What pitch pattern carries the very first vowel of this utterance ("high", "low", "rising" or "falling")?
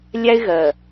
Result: high